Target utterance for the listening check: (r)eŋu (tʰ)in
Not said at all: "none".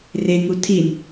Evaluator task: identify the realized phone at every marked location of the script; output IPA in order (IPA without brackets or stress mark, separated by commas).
r, tʰ